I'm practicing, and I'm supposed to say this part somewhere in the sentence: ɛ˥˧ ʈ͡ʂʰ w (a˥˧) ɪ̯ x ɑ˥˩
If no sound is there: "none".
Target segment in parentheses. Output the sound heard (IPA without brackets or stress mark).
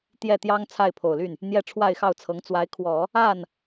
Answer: a˥˧